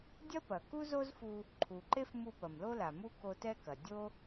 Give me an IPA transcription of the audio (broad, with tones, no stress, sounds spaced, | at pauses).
dʲ ɐ˥ p ɐ˩ k u˥ z o˥ z f u˧ | ǃʰ u˩ ǃ e˥ f m u˧ p ɐ˩ m l o˧ l a˩ m u˥ k o˧ t ɛ˥ k ɐ˩ dʲ o˥